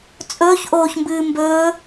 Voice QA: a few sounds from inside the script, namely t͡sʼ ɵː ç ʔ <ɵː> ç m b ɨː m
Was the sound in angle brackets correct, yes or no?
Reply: no